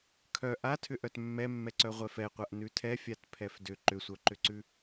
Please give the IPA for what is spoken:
kʰœ ʔatʰʏʔœt mːɛmːɛǀœ ʁʷɛfɛqʷaʔ nʉtʰɛfʲat pʰɛfdʏ ǃʏsʷœǃʏǀʉ

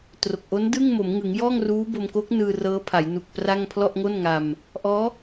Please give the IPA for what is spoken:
tro˨˩k̚ʔo˦˥n dɯ˥˩ŋ mo˩˦mŋɯ˩˦ŋjɔː˥˩ŋruː˦˥ bo˧mko˦˥k̚nɯː˧ rɤː˦˥ pʰa˩˦jnu˨˩k̚ pra˥˩ŋ pʰlɔ˥˩ʔŋo˥˩n ŋa˧m | ʔɔː˦˥

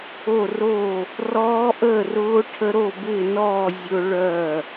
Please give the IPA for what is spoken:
o˥˨ro˥˨ | rɔː˦˥ʔəː˥˨rʊː˦˥ ʈʰə˦˥ ɾo˥˨bɪː˥˨nɔː˥˨ zʲʊ˦˥ɭœ˥˨

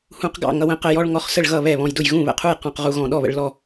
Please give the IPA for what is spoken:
hũ˧qɡɑ̰˥˨ ŋʌ˧wə̃˧qə˧ jɔ˧ɭ ŋɔ˧χsə˥˨ɭɣʌ˥˨ βɛ˥˨βɔ̃˧jdʊ˥˨j ɣũ˥˨βə̰˧qʰu˥˨j qɔ̃˧qʁu˧ɣɔ̃˧ ɗɔ˥˨βə̰˧ɭlɔ˥˨

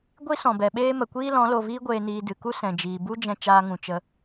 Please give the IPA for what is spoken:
ɡʷi˦sɔ̃˨bɛ˨ɓeː˦ mə˨kʷiː˦ lɔ̃˨˦ lo˨viː˦ ɡʷeː˧niː˧ dɨ˨ku˦ sɛ̃˨d͡ʒiː˨ bu˦d͡ʒɛ̃˧ t͡ʃaː˧ŋũ˨ t͡ʃə˧

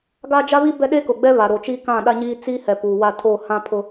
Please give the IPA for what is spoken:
ɡa˦d͡ʒa˦βi˦ bɛ˦ɗe˦kʊ˨ɡ͡bɛ˦ βa˨ɾo˨ t͡ʃiː˦kã˦˨ɗa˦ɲiː˦ t͡si˦hɛ˨ puː˨wa˦˨ tʰoː˦˨ hã˦pʰʊ˦

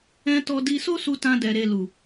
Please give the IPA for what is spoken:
ɛ̃˧ tɔ˧di˧so˦su˧ tã˧dɛ˨ɾe˨lu˨

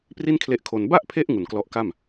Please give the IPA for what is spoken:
pri˥˩nkʰle˦˥ʔkʰo˧n ba˥˩ʔpʰe˦˥ʔ ŋu˨˩nklɔ˦˥ʔka˥˩m

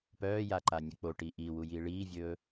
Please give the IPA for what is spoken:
pœːja ǃanʲək͡poʈi ʔiwu jiːɭiːvʲɵː

